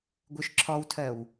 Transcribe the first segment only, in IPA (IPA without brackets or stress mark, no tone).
ɡʷ